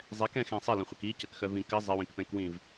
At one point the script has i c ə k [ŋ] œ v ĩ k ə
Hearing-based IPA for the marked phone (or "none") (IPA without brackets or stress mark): x